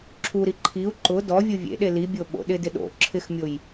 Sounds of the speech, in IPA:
ǁʰ u ɾ i ǃʰ i u̯ ǃ ʊ d ɔ vʲ u vʲ ḛ ɗ e l i bʲ o ɓ o̰ ɗ ɪ d ɪ ɗ o̰ ǁʰ ɪ x mʲ o j

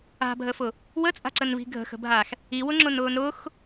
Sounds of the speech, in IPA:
a̤ bʱ ə f ʊ | w ə t͡sʼ a̤ ǀ ə n v i̤ ɡʱ ə̤ x ə̤ bʱ a x | i w ʊ ŋ͡ǁ ʊ n ʊː n ɾ ʊ x

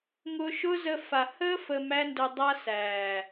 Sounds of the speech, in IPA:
ŋ ʊː˧ ʃ ʊ˦ z ə˧ f a˨ h əː˦ f əː˧ m æ˦ n d ʊ˧ dˤ a˦ s æː˨

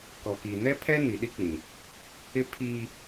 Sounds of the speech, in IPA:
k ɔ˨ k i˨ n ɛ˦ pʰ ɛ˦ n i˨ ɗ i˦ k͡p ĩ˨ | ɪ˦ pʰ iː˦

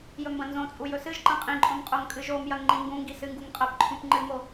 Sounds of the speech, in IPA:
j ɵ m b ɐ̃ n z õ t͡sʼ u j ɵ s ɨ ʒ ǃ ɐ̃ qʼ ĩ ǃʼ õ m qʼ o ŋ kʼ ɨ ʒ o m j ɐ ŋ ŋ͡ǃ ĩ ŋ ɡ ũ ŋ ɡ i s ɨ ŋ ɡ u ŋ qʼ ɐ p ǃʰ ũ p ŋ͡ǃ ɨ m o

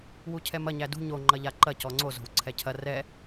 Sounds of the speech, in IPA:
w u cʰ ɛ m ɐ ɲ æ d ṳ ɲ o ŋ͡ǃ ɐ ʎ a ǃ ɐ c ɔ ŋ͡ǀ o z o̤ w ǀʰ ɛ cʰ ɐ r ɛ

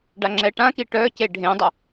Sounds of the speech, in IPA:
ɖ a ŋ͡ǁ ɛ ʈ ã k i ʈ œ c e ɖʱ ẽ dˤ ə

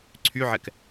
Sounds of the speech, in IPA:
ǀʰ y ʕ ɛ k

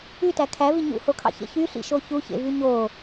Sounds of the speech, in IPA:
y t æ kʰ æ v i ɲ ṵ h o kʰ ɑ̰ ç ḛ ç y ɬ ḭ ʃ o ç u ç ḛ v y ɲ o

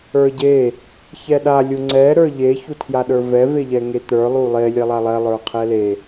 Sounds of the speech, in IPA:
ə˞ ɟ e | ç ɛ ɗ a lʲ u ŋ͡ǀ ɛ ɾ ə˞ ʎ e ç u tʰ j a ɗ ə˞ v ɛ v e ʎ ɛ ŋ e t̪ ə˞ lˠ u lˠ e lʲ ɛ lˠ a lˠ ɛ lˠ ə˞ qʰ ɛ l e

